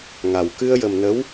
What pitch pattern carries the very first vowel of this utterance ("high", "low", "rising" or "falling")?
low